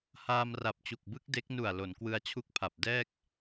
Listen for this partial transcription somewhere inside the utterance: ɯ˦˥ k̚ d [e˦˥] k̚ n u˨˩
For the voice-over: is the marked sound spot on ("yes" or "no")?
yes